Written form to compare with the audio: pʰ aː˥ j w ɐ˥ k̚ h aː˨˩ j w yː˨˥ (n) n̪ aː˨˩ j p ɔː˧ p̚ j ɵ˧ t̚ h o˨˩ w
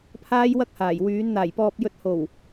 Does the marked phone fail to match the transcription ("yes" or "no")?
no